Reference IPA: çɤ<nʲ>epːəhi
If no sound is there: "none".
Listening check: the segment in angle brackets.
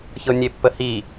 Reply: nʲ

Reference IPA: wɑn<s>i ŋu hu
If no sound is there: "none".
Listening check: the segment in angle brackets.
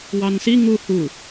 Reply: s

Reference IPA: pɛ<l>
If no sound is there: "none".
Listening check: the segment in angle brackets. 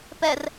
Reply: r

